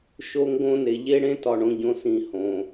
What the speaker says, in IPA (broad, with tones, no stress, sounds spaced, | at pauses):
ʃ o˦ ŋ ɡ õ˦ n e˨ ʎ e˦ ɽ ẽ˦ t ɒ˨ ɳ õ˨ ɟ õ˨ s ĩ˨ h õ˨